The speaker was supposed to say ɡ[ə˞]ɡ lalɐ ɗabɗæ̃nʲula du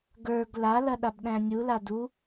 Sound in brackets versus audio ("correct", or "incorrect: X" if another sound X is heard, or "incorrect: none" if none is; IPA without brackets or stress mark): correct